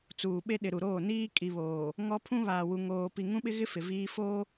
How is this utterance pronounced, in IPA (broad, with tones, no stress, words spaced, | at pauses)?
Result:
t͡suː˨ɓe˦ɗɪ˨ ɾu˨ɾoː˦˨ niː˦ kʼi˨βoː˨ | ŋɔ˦ pʰũ˦βaː˨wu˨ ŋoː˨pi˨ ŋũ˦ɓɪ˦ɣɪ˦ fɪ˨viː˦ foː˦